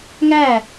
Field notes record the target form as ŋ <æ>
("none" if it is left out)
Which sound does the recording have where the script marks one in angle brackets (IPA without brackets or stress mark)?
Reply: æ